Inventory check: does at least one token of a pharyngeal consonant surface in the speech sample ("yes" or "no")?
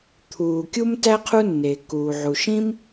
yes